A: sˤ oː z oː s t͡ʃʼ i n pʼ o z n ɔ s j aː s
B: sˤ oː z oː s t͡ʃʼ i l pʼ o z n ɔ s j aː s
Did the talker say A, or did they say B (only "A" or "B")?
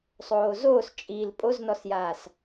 B